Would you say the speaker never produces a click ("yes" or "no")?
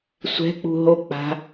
yes